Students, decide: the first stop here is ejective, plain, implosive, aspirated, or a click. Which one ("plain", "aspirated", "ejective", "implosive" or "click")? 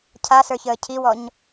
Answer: aspirated